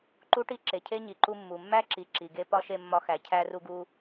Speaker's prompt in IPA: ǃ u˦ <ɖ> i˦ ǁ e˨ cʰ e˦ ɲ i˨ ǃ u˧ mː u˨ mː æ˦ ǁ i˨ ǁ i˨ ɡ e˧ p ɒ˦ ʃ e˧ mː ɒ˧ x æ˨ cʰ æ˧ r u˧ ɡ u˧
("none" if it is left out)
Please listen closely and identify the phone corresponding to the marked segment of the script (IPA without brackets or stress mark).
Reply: ʈ